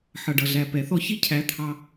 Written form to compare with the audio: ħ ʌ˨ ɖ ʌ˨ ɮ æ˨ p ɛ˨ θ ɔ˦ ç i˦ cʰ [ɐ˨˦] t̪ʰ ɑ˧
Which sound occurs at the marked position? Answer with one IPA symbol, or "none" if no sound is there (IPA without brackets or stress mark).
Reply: æ˨˦